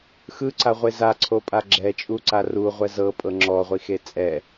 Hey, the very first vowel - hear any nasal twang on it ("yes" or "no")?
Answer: no